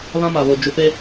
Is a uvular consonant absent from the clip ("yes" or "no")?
yes